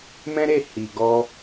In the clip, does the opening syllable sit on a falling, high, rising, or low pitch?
high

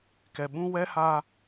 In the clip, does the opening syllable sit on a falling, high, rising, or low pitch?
low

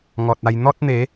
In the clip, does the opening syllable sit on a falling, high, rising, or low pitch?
low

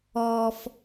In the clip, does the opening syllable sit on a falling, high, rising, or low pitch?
high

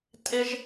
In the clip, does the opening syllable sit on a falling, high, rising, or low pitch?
high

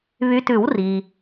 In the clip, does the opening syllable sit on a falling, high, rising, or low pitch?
rising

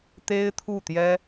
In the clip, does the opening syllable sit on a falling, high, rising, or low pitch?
high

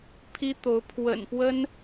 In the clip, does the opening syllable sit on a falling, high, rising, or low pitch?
high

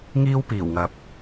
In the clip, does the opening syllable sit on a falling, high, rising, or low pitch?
high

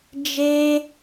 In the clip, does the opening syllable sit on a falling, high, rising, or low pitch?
high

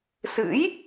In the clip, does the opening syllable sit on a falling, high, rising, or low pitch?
rising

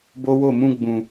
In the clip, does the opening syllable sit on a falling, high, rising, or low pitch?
high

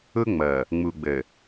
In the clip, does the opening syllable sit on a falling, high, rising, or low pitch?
high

